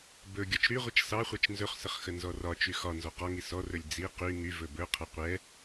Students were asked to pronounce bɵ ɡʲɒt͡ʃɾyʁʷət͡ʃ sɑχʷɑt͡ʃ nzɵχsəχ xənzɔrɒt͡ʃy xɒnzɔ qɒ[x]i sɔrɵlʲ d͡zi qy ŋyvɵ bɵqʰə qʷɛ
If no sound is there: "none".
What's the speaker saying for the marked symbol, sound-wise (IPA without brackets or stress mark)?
ŋ